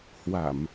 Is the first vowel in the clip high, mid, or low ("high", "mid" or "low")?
low